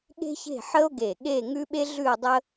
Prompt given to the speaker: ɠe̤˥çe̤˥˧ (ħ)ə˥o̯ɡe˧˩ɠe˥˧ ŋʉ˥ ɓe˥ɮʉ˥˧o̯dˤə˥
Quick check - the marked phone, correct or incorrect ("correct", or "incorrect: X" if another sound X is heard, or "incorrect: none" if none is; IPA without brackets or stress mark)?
correct